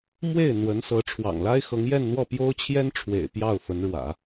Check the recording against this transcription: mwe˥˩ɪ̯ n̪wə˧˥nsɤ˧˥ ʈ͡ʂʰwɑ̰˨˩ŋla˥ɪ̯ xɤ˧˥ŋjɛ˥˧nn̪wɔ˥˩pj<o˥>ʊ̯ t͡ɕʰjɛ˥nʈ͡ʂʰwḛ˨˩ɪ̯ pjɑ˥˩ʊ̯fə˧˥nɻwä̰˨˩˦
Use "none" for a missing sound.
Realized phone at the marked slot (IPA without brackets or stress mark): o˥